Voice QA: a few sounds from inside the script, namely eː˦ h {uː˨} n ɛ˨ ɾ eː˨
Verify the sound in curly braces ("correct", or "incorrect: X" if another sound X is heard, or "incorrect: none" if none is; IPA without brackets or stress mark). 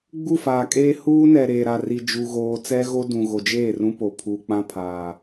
incorrect: uː˦